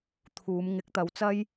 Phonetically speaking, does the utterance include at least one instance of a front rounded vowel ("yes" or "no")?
no